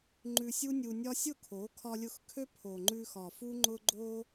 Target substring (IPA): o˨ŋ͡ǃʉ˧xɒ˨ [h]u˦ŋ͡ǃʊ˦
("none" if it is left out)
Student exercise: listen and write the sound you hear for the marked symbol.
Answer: f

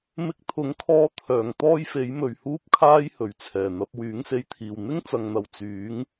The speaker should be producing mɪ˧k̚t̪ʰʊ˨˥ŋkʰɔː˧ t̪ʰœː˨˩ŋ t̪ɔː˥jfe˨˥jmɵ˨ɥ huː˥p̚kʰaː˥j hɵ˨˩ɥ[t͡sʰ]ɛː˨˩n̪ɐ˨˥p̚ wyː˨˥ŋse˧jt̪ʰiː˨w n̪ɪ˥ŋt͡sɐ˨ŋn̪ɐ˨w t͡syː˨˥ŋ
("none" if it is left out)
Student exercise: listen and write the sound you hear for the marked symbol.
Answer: t͡sʰ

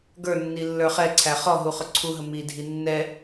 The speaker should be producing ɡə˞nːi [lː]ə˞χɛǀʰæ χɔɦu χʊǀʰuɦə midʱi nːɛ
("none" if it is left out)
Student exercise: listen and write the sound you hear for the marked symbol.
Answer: lː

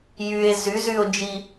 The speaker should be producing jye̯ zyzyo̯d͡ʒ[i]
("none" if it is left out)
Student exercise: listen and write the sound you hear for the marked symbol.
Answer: i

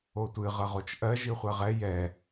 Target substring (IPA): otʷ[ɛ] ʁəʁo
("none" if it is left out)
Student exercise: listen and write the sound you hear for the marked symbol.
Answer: ɨ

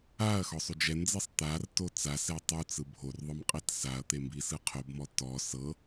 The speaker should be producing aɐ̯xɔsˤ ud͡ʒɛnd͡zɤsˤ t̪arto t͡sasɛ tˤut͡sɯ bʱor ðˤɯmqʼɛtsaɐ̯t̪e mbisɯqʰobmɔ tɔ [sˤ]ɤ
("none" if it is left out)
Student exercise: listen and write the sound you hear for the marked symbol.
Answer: s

